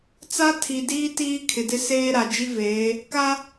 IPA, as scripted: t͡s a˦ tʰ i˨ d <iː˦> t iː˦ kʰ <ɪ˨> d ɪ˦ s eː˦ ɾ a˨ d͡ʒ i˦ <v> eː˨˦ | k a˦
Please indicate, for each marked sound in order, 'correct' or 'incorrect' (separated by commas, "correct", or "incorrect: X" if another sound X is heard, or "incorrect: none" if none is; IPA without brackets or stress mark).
correct, correct, correct